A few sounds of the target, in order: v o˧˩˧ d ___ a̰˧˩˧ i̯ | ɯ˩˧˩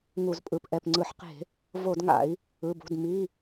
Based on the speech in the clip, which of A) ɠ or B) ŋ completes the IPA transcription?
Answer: B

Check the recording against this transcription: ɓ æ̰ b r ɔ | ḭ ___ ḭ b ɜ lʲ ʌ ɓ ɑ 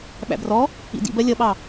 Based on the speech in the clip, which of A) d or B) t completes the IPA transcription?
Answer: A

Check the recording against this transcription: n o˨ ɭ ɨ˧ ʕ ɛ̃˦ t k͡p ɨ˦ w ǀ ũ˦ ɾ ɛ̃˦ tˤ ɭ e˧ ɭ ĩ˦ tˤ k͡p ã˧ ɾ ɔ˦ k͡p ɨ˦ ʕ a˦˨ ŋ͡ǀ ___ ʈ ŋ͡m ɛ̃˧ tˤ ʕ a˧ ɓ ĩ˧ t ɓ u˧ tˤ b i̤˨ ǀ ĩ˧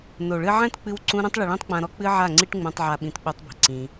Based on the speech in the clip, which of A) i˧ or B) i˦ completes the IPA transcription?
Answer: B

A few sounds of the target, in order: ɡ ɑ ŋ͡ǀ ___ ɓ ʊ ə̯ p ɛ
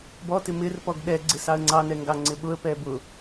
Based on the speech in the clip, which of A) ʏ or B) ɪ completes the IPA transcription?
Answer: B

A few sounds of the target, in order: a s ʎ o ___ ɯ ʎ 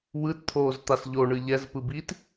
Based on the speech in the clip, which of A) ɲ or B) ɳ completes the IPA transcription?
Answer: B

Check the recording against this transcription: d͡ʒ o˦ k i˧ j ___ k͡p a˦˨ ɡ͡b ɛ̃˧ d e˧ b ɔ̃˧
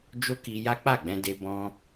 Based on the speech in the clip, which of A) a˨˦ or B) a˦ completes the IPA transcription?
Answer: B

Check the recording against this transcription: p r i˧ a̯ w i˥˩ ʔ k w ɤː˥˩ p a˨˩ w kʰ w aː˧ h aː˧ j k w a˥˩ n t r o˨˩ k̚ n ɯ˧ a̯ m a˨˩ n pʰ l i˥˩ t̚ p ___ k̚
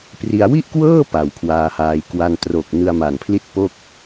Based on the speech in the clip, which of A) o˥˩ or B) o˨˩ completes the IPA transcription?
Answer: A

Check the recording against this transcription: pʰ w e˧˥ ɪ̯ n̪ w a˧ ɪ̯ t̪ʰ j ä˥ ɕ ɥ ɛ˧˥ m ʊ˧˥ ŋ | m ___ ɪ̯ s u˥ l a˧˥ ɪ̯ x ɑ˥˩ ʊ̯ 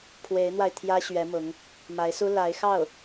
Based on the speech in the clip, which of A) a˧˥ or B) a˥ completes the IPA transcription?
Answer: A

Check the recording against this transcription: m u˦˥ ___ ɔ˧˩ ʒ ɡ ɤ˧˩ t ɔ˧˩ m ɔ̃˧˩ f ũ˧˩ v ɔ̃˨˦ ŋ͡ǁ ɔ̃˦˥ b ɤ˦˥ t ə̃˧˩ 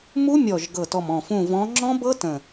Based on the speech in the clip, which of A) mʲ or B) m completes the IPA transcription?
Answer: A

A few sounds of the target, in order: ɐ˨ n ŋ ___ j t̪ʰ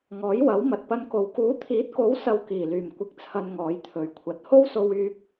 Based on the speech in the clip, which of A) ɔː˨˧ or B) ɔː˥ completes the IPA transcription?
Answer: A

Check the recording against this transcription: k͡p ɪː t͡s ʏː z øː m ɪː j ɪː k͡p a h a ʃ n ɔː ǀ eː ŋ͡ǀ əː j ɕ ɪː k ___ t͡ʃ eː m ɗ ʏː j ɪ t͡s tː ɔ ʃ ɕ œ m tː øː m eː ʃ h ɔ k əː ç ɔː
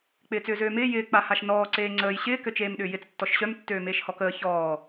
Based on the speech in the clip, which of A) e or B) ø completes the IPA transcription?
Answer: B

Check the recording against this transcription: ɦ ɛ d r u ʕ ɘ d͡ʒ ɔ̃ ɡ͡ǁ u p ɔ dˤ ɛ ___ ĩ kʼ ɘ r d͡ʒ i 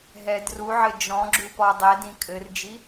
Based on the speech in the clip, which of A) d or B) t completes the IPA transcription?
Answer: A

